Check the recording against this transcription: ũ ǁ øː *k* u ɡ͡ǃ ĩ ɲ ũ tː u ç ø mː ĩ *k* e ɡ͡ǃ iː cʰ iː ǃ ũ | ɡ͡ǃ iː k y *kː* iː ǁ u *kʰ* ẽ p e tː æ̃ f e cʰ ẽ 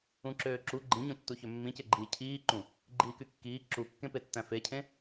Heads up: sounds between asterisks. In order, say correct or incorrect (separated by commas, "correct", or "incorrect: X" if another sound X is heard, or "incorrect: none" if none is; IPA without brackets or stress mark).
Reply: incorrect: ǁ, incorrect: c, correct, incorrect: kː